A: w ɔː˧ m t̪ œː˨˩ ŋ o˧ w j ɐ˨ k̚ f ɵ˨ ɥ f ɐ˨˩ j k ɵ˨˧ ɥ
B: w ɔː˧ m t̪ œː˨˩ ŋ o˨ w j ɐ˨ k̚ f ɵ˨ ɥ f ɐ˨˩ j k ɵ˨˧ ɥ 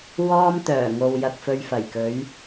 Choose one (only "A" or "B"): B